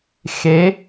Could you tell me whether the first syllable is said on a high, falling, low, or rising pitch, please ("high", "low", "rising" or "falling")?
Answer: rising